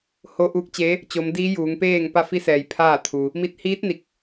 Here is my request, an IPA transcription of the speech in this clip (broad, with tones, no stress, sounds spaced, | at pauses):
h o˧˥ ʔ uː˧˥ k̚ t͡ɕ e˧˥ | t͡ɕ o˧˥ m d iː˧˥ j uː˩˧ ŋ p eː˥˨ ŋ p a˥˨ f i˧˥ s ɛː˩ j pʰ aː˥˨ t̪ʰ u˩ | m i˧˩ t̚ h iː˧˥ t̚ n i˧˩ k̚